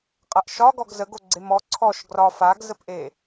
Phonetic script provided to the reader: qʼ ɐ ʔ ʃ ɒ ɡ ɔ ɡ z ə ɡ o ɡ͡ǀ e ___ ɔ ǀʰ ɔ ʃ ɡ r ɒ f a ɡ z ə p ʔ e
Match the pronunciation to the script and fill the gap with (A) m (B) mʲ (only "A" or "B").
A